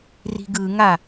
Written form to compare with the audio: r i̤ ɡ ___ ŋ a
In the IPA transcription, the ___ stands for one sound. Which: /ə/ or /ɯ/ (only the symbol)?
ɯ